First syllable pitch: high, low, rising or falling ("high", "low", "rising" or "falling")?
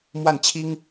falling